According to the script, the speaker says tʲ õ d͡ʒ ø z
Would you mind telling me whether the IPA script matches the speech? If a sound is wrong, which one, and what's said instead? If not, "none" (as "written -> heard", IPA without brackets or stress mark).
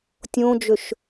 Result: z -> ʃ